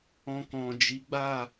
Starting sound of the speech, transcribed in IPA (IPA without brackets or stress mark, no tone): ɔ̃